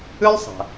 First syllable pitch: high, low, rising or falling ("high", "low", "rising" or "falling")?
high